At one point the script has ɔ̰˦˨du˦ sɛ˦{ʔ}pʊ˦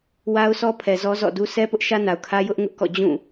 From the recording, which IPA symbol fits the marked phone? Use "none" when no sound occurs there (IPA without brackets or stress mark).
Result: none